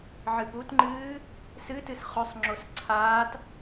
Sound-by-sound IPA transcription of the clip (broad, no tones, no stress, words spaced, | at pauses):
ʕɨputŋ͡ǃɨː | sɨ tɨsχɵsˤŋ͡ǁos ǀʰaːt